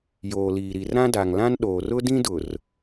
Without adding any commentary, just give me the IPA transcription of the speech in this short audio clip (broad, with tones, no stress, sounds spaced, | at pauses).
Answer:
j oː˨ l iː˨ ɾ i˨ r ɾ ã˦ d a˨ ŋ l ã˦ n ɗ oː˨ r ʊ˦ d ĩ˦ d ʊ˨ r